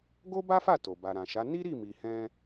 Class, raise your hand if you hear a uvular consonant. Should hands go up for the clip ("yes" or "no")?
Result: no